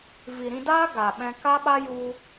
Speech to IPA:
v i˨ ɾ ĩ˧ d aː˦ ɡ a˨ ɓ ɛ̃˧ k a˦ ɓ a˦ j u˧

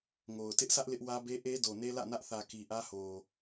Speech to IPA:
ŋ o˨ ʊ̯ t ɪ˦ ʔ s ä˦ ʔ l ɪ˦ ʔ w ä˦ b e˦ ʔ e˦ d o˨ n e˦ l ä̰˦˨ n ä˦ ʔ θ ä˨ k i˨ ʔ ä˦ h o˨

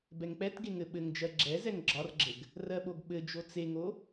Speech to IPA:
b ɛ ŋ k͡p ɛ t ɡ e ŋ ɘ ɓ ɘ ŋ d͡ʒ ɜ ɡ͡ǁ ɛ z ɛ ŋ ɡ͡ǁ ɒ r ɡ͡ǁ ɘ ɡ | r ɜ ɓ o ɡ ɓ ɘ d͡ʒ o t͡s e ŋ o

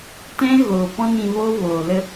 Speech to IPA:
t ɛ̃˦ ɣ oː˨ p ɔ̃˦ n ĩ˧ v o˦ v oː˨ l ə˧

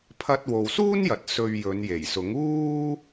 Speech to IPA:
pʰ ɐ˧ t̚ w o˨ w s uː˥ n j ɐ˨ t̚ s ɵ˧ ɥ j ɵ˨˧ n j e˨˩ j s ʊ˨˥ ŋ uː˥

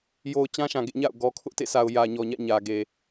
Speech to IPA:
j o˨ ʊ̯ t͡ɕ ã˦ ʃ ã˨ ɡ ḛ˦˨ ɲ a̰˦˨ ʊ̯ ɡ ɔ˨ kʰ ʊ˦ ʔ t ḛ˦˨ sʰ a˨ ʊ̯ j ä˨ ɲ ɔ˨ ɲ ä̰˦˨ ɲ ä˨ ɡ e˨

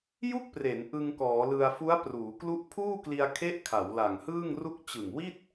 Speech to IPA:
j u˥˩ k̚ p r e˩˦ n ʔ ɯ˧ ŋ k ɔː˩˦ l ɯ˧ a̯ f u˦˥ a̯ p r uː˩˦ k l u˥˩ ʔ pʰ uː˥˩ k l i˧ a̯ kʰ e˦˥ ʔ kʰ a˩˦ w l a˨˩ ŋ h ɯː˥˩ ŋ r u˥˩ k̚ t͡ɕ ɯ˨˩ ŋ w i˥˩ t̚

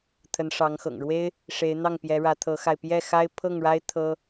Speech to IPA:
t̪ʰ ə˧˥ n ʂ ɑ˧˥ ŋ x ɤ̰˨˩ ŋ ɻ w e˥ ɪ̯ | ʂ e˧˥ ɪ̯ n̪ ɑ˥˩ ŋ p j ɛ˧˥ ɻ ä˧˥ t̪ʰ ɤ˧˥ x a˧ ɪ̯ p j ɛ˥˩ x a˥ ɪ̯ pʰ ɤ˥˩ ŋ ɻ a˥ ɪ̯ t̪ʰ ɤ˥

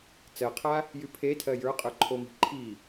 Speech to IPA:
t͡s ɜ qʰ a | j y pʰ e tʰ ɜ j ə˞ qʼ ə˞ ǃʰ o m i̤ ǃʰ i

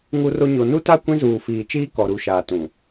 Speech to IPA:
ŋ u˦ r o˦ ɲ o˨ n u˦ t a˦ kʷ ĩ˦ z uː˨ f iː˨ t͡ʃ iː˦ k ɔ˨ ɾ u˨ ʃ aː˨ t ũ˨

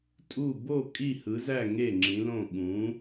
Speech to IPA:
tʼ u˥˩ b o˥˩ kʼ i˥˩ h ɯ˨˥ z æ˥˩ ŋ e˥˩ ŋ͡ǁ ĩ˨˥ l õ˥˩ ɠ ũ˨˥

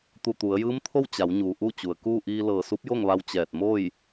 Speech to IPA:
t̪ u˧˩ t̪ u˩˧ ə̯ j ɯː˧˥ m t̪ʰ o˥˨ w t͡ɕ a˩˧ w ɲ uː˩ ʔ u˥˨ t͡ɕ u˩ ə̯ k uː˥˨ ʔ iː˧ l ɤː˧˩ s u˧˥ p̚ j o˥˨ ŋ ʋ a˧ w t͡ɕ ɛː˧˩ t̚ m o˥˨ j

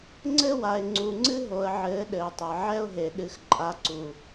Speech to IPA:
ŋ͡ǀ ɘ˦ w a˨ ɪ̯ ŋ͡ǀ u˨ ŋ͡ǀ ɨ˦ ɦ o˨ ə̯ ʕ ɘː˨˦ ɗ ɘː˨ tˤ ɐ˨ ʕ ɛ˦ ʊ̯ ɦ e˨ ɗ ɨ˨ x ǃʼ a˨˦ ǀ u˨

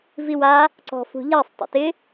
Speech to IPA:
v i w a | ǀ ɔ̤ f ṳ ʎ a sˤ tˤ ə̰ t ɪ

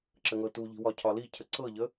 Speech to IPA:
ǁ ə ŋ ɤ t u ʎ i̤ w ɒ cʰ ɒ l i cʰ ə ǀ ɤ ʎ ə

